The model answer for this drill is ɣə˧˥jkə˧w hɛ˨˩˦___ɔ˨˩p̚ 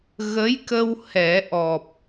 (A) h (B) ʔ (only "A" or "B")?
B